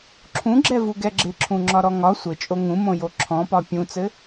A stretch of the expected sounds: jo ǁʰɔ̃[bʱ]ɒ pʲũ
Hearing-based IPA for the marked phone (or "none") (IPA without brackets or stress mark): p